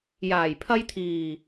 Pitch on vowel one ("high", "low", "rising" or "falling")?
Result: low